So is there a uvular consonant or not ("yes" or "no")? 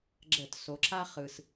yes